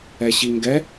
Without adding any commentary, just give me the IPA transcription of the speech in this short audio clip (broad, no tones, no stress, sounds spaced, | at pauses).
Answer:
ɛ ɕ i ŋ ɡ ɛ